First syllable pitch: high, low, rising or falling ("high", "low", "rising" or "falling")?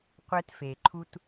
high